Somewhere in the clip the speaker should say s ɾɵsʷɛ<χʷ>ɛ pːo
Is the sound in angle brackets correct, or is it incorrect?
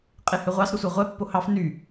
incorrect